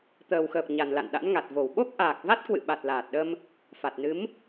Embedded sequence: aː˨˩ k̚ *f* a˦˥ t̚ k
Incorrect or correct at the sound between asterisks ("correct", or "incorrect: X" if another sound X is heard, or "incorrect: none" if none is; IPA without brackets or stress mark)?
incorrect: v